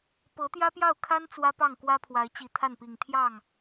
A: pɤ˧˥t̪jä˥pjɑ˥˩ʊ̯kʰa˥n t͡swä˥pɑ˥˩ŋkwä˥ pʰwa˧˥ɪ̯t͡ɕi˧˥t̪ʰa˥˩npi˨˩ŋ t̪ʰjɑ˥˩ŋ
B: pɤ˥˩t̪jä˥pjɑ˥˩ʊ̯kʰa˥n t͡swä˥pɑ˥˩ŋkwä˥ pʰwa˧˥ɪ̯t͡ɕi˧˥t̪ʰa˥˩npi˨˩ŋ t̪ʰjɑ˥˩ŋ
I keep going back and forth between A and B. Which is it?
A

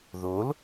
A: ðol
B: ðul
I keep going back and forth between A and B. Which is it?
A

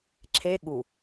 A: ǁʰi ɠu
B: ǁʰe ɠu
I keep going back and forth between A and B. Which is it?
B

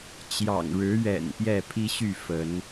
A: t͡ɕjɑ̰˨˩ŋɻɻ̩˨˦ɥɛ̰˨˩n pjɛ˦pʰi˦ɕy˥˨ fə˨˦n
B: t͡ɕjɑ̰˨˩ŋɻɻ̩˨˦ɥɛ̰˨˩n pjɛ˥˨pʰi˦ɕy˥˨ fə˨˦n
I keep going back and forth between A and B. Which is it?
B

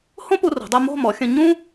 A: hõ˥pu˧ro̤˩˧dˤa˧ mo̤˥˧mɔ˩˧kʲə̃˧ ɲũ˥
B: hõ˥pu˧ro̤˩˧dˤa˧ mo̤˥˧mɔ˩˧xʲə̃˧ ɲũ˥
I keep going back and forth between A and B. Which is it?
B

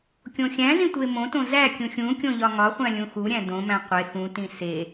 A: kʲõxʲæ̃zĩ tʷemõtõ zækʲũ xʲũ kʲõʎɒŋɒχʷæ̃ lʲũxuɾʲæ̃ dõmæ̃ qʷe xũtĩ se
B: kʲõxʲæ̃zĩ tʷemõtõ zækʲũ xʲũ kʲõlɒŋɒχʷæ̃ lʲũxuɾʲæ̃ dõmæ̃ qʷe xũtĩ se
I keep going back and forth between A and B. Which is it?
A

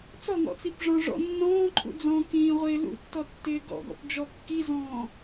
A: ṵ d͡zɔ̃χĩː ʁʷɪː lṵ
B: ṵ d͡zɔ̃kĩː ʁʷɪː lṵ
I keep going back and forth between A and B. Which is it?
B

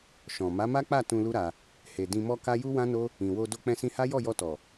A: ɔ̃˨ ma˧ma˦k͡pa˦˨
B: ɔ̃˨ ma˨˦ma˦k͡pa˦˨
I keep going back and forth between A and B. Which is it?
B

